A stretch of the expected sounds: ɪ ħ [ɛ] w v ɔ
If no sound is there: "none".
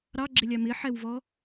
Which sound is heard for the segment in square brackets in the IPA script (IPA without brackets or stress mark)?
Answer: ɛ